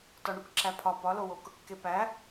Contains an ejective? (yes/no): no